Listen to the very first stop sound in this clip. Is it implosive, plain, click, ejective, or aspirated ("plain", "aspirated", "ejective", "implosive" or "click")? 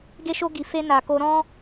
plain